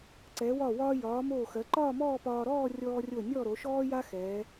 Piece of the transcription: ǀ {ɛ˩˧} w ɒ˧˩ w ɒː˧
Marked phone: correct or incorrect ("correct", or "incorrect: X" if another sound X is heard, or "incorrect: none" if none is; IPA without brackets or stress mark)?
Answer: correct